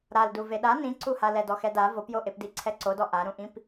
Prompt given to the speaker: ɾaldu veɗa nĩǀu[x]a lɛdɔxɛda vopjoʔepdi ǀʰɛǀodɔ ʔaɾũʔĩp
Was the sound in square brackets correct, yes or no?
no